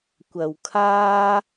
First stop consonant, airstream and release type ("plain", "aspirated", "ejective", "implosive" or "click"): plain